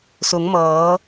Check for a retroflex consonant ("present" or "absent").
absent